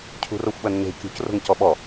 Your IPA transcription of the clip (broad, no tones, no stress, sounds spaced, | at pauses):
cʰ ṳ r o xʷ ɓ ɐ nː e̤ kʲ ṳ c r o̤ ŋ c ɔ ɓ ɔ